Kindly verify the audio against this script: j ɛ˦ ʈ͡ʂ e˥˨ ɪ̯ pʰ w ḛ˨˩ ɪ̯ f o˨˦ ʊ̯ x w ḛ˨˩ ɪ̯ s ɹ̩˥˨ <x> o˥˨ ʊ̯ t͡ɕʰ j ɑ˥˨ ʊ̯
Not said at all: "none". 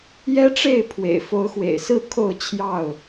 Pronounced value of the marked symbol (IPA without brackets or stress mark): kʰ